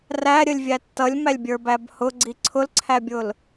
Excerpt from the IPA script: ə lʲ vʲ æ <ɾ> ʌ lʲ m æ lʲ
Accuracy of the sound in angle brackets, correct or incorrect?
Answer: incorrect